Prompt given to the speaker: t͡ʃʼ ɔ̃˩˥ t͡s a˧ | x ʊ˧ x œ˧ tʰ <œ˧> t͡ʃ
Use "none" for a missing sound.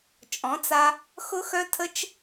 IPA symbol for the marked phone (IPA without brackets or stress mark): ə˧